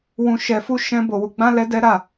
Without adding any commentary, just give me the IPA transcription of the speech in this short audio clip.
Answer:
w ũ˧ ʃ ɛ˧ f u˦ ʃ ɛ̃˦ b o˧ w u˧ ɡ͡b ã˦ l ɛ˦ d ɛ˦ ɾ a˦˨

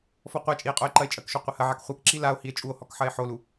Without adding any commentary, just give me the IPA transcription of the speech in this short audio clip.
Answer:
f ɔ qʷ a t͡ʃʼ i e̯ qʼ o e̯ ǃ ɐ e̯ t͡ʃʼ ɐ k ʃ o qʷ ɐ h ɐ ʕ a k χʷ ɐ k ǁ i l a o̯ h i e̯ t͡ʃʼ u o̯ h ɔ k ħ ɐ e̯ ħ o l u

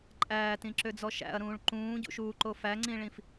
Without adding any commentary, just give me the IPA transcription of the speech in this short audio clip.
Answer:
ǃʼ æː t ĩ ǁ ø d͡z ɔ ʃ æ̰ ɐ̯ ɾ ũː ɭ ǃ ũː ɟ ṵ ʃ uː ǃ o f æ ŋ͡ǀ ĩ ɭ ĩ f

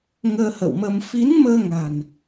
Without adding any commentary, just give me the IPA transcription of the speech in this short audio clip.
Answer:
ŋ əː˧ h ə̰˧˨ w m ə˧ m f i˨˦ n m əː˧ ŋ a̤˨˩ n

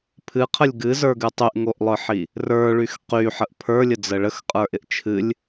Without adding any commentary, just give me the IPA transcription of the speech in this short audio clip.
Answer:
pʰ ɨ qʰ ə lʲ ɡ ɨ z ə˞ ɡ ɨ tˤ y ʔ ŋ o ʔ lˠ ə˞ ħ i | r ə˞ ɭ y x q y ħ ə ʔ pʰ ə˞ lʲ ə d͡z ə ɭ ə x qʼ ə˞ ʔ ɪ ʔ t͡ʃʰ ɨ lʲ

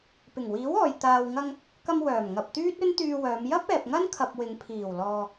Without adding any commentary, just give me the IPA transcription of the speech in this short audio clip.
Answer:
p ɪ˨˩ ŋ w iː˨˥ w ɔː˨ j t̪ aː˨ w ŋ ɐ˧ ŋ | k ɐ˧ m w œː˨˩ m ŋ ɐ˨ p̚ t̪ yː˥ t̚ ɵ˥ n t̪ yː˧ w œː˨˧ m j ɐ˥ p̚ ɛː˨ p̚ ŋ ɐ˥ n kʰ ɐ˨ p̚ w ɪ˨˧ ŋ pʰ iː˨˩ w l ɔː˨

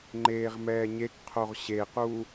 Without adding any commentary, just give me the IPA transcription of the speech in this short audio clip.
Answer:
ŋ͡ǃ eː ʁ m ɛː ɲ e k qʰ o ʁ ɕ e q u

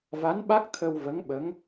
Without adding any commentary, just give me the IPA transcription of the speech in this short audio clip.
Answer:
v a˧˥ n ɓ a˦˥ k̚ t̪ʰ ə˧ w v ə˧˥ ŋ ɓ ə˧˥ ŋ

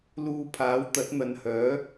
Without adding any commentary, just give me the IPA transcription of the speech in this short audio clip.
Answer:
l uː˧ pʰ aː˨˥ w t̪ ɐ˨˥ t̚ n̪ ɐ˨˧ n h œː˨˥

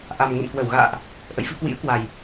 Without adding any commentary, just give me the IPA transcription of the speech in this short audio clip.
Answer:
ʔ a˨˩ m ŋ ə̰˧˨ n k w ə˧˩ w ɣ a̰ː˧˨ ʔ | ʔ ə̰˧˨ j f ɨ˧ k w ḭ˧˥ ə̯ k w a˨˩ j

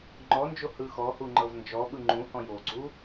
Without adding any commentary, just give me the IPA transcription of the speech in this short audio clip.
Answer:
ŋ͡ǃ ɔ n d͡ʒ o h ɯ x ɔ h u ŋ͡ǃ ɤ v n d͡ʒ ɔ ɓ ɯ ŋ͡ǃ ũ h ɔ̃ j o ɡ͡ǀ u

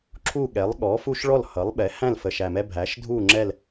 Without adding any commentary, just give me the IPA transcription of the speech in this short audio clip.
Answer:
ǁʰ u˥˨ ɠ ɛ˩˥ lˠ ɠ ɔ˩˥ f u˦ ʃ ɭ ɔ˥˨ l h ʌ˩˥ lˠ ɓ ɛ˩˥ h æ̃˥˨ l f ə˨˩ ʃ æ˨˩ m ɛ˦ bʱ æ˩˥ ʃ dʱ u˥˨ ŋ͡ǁ ɛ˥˨ l

